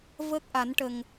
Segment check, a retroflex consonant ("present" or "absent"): present